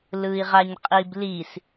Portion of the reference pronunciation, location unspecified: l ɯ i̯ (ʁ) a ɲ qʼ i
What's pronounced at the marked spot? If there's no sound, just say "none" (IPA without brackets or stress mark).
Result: ʁ